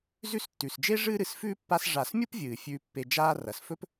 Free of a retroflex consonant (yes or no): no